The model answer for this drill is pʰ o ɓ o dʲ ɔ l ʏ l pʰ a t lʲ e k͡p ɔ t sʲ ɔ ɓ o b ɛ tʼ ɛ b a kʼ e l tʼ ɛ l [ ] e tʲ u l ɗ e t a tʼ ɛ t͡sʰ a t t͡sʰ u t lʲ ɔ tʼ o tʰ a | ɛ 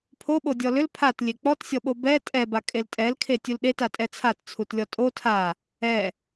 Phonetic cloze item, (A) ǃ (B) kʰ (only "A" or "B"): B